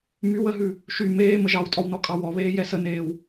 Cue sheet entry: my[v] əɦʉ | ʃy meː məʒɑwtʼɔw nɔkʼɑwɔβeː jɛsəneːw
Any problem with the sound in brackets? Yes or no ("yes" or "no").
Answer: yes